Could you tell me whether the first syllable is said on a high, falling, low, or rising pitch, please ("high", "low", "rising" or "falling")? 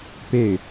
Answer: falling